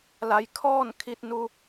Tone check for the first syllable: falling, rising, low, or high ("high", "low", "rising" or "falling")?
rising